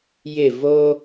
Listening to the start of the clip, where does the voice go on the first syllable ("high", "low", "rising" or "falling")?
falling